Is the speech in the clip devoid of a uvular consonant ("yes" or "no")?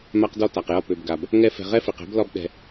no